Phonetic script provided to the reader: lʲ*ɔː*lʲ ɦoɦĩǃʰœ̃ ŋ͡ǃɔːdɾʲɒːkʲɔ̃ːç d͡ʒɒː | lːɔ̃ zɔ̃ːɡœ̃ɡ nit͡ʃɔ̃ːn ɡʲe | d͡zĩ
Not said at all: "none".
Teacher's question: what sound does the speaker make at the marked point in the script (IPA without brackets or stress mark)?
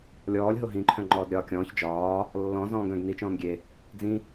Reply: ɔː